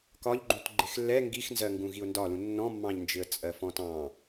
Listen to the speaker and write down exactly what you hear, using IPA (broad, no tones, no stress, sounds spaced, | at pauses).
k ɒ ʎ ɡ͡ǃ ũ t ɡ͡ǃ ɪ x lː ɛ ŋ ɡ i x n z ɜ ŋ ɡ ũ ɣ i ʊ̯ n d ɒ l ũ nː ɔ̃ mː ɑ̃ ʎ n d͡ʒ ɪ ə̯ t͡sʼ ɜ f ɔ̃ t ɑ̃